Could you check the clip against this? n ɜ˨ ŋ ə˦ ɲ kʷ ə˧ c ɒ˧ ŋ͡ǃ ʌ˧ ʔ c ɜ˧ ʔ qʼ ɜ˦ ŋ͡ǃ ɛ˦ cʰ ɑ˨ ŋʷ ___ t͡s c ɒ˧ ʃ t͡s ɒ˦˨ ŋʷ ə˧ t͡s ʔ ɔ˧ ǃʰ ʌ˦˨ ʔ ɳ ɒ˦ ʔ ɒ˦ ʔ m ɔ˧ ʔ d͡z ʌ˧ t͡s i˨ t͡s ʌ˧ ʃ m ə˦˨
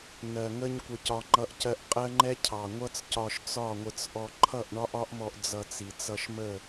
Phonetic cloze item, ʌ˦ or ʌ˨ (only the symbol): ʌ˦